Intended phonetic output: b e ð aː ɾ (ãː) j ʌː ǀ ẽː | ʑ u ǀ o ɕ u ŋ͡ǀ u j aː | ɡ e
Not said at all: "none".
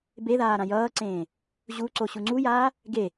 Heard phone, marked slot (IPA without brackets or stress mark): ã